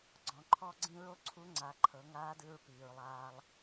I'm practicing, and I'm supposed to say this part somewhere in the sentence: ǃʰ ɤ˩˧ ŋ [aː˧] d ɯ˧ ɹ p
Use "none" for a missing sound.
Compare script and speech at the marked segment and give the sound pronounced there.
aː˧˥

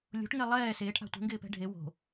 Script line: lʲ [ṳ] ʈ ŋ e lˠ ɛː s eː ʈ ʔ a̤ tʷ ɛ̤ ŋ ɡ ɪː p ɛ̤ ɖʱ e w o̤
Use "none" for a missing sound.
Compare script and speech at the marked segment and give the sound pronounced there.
o̤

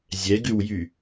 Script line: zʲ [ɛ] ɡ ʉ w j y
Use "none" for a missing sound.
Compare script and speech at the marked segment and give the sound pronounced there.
ɛ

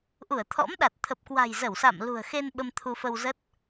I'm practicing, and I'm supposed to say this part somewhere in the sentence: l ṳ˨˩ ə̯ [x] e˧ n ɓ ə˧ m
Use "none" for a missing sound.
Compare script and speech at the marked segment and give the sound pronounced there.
x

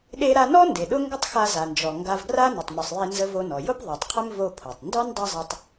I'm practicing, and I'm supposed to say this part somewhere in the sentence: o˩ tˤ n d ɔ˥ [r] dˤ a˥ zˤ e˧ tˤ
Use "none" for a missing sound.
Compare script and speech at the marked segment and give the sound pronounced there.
n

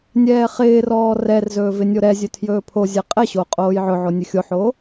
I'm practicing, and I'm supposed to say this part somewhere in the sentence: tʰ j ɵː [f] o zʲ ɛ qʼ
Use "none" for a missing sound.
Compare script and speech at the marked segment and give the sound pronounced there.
pʰ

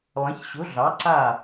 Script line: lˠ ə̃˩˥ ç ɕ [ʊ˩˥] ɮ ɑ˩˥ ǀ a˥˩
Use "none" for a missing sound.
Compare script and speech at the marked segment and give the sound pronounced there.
ʊ˩˥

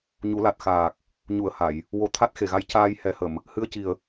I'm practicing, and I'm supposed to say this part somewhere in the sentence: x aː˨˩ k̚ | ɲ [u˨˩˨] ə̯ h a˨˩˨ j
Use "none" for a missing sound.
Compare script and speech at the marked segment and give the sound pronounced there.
u˨˩˨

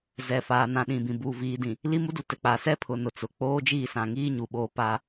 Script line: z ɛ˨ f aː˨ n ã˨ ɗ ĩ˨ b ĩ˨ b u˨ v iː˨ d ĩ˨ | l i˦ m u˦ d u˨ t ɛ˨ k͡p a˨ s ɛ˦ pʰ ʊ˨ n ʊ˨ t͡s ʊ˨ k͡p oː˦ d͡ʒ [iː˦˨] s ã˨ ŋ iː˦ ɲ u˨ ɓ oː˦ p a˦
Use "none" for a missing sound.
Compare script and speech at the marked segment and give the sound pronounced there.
iː˦˨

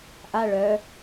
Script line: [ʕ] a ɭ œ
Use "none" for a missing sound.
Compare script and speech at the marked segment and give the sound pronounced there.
ʔ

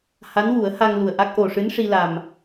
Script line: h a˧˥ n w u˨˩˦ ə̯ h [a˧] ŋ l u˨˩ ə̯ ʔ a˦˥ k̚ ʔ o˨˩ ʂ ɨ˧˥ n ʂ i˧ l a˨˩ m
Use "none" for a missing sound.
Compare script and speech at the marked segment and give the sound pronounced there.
a˧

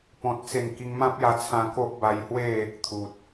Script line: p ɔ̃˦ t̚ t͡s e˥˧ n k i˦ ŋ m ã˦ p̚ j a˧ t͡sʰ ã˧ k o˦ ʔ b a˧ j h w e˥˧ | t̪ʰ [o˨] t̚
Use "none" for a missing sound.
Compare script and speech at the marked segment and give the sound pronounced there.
u˨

